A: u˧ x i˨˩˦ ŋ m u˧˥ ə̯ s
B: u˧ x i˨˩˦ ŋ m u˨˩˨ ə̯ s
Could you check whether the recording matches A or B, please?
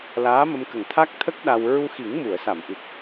B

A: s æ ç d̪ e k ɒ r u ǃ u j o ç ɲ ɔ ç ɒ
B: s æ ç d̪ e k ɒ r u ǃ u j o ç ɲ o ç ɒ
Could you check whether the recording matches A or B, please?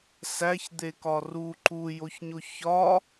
B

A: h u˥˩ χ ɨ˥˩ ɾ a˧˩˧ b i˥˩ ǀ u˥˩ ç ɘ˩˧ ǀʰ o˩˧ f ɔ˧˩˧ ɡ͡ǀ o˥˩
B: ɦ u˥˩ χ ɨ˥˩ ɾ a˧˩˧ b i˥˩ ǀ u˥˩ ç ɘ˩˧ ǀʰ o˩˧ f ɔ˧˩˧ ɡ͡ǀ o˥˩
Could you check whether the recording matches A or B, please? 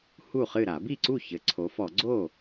A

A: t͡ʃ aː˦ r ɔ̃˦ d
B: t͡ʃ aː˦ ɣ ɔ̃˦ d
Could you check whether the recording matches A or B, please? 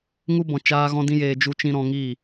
B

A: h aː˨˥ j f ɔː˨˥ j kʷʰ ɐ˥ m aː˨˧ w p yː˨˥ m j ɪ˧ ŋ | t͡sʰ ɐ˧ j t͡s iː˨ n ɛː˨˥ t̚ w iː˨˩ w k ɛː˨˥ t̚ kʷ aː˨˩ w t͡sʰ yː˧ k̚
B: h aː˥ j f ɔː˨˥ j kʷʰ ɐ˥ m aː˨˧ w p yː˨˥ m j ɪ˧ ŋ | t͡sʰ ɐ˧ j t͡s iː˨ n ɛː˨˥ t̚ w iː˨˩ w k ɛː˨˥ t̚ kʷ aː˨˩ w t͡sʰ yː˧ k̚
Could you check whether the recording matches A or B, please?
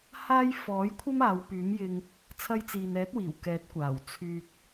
B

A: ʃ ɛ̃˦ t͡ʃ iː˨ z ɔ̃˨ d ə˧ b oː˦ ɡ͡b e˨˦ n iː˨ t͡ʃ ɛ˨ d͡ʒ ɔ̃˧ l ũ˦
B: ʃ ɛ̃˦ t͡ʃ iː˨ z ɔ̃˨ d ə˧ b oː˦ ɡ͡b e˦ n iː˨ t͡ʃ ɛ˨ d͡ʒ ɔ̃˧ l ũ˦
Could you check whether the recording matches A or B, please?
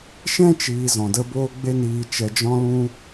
B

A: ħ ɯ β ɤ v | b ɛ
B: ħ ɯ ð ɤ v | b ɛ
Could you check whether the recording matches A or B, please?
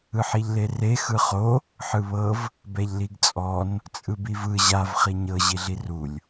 A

